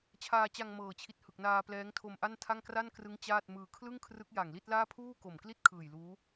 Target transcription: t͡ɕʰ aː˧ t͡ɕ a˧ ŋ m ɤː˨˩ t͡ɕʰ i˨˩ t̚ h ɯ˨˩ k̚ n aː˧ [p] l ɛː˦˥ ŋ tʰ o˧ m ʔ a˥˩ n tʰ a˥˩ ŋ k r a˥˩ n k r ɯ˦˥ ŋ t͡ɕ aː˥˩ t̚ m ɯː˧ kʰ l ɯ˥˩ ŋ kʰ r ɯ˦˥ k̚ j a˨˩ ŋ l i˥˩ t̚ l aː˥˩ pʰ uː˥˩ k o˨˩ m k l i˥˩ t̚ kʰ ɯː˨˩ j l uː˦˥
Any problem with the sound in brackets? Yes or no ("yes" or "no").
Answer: no